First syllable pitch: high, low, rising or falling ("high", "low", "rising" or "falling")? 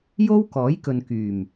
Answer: high